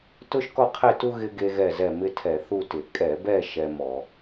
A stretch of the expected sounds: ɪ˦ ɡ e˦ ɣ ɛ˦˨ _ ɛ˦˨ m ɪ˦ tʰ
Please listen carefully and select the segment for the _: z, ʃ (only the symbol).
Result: z